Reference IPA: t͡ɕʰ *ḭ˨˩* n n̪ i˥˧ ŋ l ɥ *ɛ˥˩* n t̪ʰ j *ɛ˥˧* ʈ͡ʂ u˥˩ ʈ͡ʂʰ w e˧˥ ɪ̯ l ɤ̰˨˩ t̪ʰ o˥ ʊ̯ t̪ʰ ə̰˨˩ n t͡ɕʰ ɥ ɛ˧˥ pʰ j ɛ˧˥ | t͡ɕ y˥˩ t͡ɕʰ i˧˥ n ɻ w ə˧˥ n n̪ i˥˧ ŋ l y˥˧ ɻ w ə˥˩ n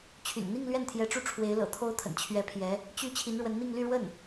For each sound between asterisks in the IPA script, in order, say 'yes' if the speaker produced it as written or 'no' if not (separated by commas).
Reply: no, yes, no